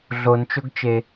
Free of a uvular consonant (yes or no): yes